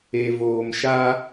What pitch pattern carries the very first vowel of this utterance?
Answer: low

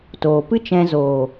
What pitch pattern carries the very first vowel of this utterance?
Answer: low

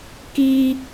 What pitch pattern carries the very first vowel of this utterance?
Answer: high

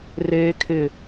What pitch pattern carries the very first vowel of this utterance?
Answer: high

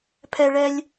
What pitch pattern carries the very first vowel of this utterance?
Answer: high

